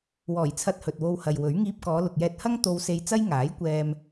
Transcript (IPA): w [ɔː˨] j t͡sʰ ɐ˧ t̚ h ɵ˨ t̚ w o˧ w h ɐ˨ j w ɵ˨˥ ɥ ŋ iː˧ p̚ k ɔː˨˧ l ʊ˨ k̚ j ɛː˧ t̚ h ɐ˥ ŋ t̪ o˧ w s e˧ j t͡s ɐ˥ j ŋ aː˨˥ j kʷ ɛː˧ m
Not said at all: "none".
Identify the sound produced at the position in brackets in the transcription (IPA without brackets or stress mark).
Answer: ɔː˨˩